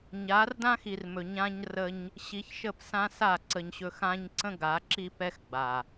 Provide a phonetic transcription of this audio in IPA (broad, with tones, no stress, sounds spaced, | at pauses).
ɲ a˨˦ r d ã˦ x i˨ r m ɵ˨ ɲ ã˧ ɲ r ə˧ ɲ | ɕ i˧ ç ʃ ə˦˨ p s ã˦ s a˦˨ ǀ ə˧ ɲ ɕ ɵ˧ x ã˦ ɲ ǀ ə̃˦ ɡ a˨˦ ǁ i˦ p ɛ˦ x ɡ͡b a˨